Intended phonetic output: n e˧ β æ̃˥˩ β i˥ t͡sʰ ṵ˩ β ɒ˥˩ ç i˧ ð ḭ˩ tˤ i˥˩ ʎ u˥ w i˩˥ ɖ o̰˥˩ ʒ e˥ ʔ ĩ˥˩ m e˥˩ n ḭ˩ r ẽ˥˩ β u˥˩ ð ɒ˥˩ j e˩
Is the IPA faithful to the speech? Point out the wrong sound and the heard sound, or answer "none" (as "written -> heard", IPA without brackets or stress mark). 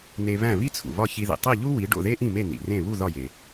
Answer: ʒ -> ð